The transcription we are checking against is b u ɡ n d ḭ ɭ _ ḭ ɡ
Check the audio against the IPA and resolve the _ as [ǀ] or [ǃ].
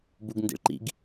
ǃ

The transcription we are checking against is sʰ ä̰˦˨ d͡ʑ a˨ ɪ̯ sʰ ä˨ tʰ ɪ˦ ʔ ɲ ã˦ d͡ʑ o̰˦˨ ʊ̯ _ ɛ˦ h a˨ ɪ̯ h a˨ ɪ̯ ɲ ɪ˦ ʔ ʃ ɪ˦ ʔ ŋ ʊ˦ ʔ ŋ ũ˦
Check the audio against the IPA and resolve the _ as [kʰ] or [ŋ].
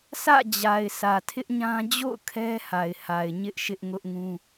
kʰ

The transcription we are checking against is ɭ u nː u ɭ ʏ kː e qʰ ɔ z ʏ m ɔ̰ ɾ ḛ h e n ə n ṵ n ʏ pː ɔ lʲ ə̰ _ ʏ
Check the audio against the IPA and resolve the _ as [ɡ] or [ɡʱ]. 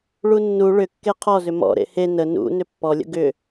ɡ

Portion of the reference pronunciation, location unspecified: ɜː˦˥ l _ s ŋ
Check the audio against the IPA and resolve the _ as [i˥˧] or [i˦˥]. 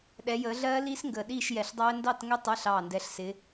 i˦˥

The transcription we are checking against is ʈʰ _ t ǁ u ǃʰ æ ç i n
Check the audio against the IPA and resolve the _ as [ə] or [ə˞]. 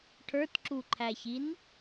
ə˞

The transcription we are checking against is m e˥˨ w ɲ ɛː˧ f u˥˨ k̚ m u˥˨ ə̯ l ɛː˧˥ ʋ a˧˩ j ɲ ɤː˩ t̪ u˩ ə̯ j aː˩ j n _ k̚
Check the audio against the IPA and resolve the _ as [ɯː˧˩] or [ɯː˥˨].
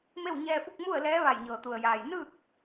ɯː˥˨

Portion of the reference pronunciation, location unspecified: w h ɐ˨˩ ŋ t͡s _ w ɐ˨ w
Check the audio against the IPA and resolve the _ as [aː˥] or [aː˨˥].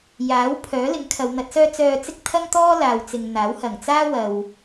aː˥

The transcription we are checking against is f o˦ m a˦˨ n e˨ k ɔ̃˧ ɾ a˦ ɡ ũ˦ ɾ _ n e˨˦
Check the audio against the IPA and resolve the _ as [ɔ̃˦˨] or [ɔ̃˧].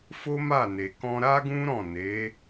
ɔ̃˦˨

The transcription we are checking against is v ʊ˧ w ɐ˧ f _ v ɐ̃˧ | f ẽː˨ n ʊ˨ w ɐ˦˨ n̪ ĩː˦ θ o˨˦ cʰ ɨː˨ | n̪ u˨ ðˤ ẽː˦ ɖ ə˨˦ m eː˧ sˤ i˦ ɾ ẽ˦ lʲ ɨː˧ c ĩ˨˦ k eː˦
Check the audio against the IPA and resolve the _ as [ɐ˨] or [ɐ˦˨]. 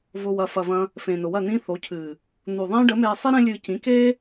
ɐ˨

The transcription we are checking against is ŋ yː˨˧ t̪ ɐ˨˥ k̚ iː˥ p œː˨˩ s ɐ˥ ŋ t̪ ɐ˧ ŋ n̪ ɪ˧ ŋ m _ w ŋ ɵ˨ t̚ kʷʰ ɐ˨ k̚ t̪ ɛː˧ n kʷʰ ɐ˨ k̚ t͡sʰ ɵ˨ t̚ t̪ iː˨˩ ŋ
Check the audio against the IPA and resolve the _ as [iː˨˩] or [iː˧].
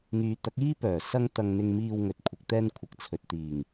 iː˧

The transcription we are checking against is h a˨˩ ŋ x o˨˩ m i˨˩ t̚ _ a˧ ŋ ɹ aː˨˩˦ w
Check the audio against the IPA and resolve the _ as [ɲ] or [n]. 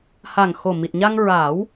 ɲ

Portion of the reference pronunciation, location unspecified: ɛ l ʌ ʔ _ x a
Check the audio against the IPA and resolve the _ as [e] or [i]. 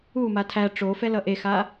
e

